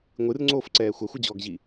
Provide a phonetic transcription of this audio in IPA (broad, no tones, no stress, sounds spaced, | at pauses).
ŋʷ ɨ r ŋ͡ǀ oː f ǀ ɛː xʷ ɐ xʷ ɨ d͡ʑ ɔː ɡ ʑ i